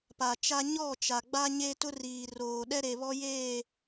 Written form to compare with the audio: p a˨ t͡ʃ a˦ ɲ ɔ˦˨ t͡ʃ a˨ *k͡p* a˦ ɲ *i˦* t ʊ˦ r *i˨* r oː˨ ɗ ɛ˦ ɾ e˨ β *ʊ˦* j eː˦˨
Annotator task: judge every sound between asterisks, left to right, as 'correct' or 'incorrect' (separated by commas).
incorrect, incorrect, incorrect, incorrect